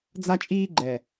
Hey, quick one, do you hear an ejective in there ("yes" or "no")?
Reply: yes